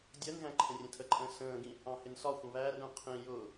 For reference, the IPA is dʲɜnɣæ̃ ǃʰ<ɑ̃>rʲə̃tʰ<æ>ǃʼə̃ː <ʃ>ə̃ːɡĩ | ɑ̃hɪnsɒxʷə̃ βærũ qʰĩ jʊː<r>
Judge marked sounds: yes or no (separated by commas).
no, no, no, no